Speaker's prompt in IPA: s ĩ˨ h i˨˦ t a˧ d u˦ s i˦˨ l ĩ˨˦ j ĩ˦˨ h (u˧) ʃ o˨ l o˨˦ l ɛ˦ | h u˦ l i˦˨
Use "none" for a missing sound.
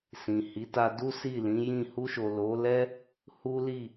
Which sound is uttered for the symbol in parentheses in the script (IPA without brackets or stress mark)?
u˧